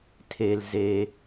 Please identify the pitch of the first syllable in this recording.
low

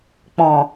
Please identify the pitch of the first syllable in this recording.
low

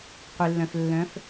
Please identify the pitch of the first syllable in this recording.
low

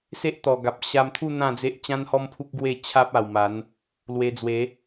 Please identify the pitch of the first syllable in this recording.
high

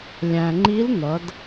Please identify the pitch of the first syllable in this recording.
low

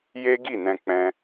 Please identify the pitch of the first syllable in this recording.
high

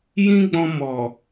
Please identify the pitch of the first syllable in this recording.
high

